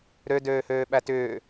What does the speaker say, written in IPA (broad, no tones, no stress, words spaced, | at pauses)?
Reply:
ɾø døːhøːɓætʏː